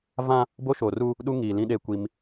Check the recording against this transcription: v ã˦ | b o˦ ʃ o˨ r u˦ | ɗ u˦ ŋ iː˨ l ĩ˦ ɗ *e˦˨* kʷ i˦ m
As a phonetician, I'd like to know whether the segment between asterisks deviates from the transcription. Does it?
no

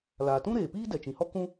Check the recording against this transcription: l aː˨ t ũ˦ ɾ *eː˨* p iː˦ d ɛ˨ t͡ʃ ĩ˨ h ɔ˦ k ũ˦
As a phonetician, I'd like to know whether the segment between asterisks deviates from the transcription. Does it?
no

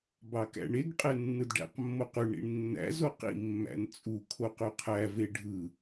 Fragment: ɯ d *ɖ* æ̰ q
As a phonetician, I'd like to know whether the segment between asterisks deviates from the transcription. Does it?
no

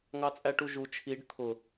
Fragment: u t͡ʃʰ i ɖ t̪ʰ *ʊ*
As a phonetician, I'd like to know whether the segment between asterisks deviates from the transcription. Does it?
no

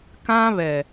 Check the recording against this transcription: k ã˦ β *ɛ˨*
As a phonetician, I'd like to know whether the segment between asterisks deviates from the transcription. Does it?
no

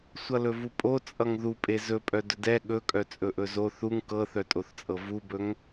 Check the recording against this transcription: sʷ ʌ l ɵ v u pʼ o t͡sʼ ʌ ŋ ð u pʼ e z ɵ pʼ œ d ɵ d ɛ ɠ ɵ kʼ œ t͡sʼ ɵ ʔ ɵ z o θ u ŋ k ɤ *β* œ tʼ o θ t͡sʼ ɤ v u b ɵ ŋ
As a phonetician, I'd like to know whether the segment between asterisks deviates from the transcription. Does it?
yes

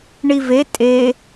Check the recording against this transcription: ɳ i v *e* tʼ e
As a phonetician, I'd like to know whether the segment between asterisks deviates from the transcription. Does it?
no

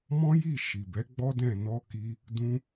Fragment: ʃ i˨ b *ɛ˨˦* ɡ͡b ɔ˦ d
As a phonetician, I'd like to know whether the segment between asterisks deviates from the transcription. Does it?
no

